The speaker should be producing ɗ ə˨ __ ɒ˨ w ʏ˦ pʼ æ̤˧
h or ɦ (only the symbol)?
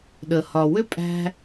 h